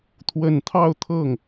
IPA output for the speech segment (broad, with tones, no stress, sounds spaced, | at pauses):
t̪ʰ w ə˨˩ n t̪ʰ ɑ˥˧ ʊ̯ t̪ʰ ɤ˥˩ ŋ